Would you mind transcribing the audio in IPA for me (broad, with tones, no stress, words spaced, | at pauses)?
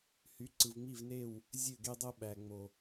hy˨˦ǀɯ˨v ŋ͡mi˦˨vne˦˨w | zʲø˦˨ɡe˦dˤo˦ ɓæ˨ŋ͡mo˨